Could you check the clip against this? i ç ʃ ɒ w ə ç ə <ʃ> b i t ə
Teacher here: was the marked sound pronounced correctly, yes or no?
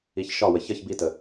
no